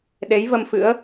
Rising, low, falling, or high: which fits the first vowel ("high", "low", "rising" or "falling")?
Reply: rising